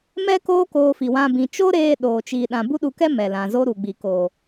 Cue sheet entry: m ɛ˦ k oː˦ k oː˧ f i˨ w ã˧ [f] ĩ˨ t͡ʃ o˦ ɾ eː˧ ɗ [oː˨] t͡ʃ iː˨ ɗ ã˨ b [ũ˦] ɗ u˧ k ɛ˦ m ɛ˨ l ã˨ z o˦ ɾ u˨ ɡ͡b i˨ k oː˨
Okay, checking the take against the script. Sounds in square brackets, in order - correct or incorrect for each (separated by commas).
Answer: incorrect, correct, incorrect